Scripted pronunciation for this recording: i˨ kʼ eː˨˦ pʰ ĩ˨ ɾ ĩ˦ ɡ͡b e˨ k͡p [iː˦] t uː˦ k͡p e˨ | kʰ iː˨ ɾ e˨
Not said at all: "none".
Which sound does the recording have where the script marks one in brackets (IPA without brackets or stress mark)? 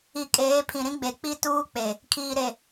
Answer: i˦